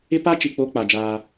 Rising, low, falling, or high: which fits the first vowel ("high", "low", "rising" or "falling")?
high